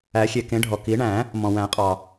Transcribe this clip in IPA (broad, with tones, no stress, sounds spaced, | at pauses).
æ˨˩˦ xʲ e˩ k ẽ˨˩˦ ɖʱ ɔ˩ k i˨˩˦ ɳ æ̃˨˩˦ | m ɔ̃˩ w æ̃˨˩˦ qʼ ɑ˩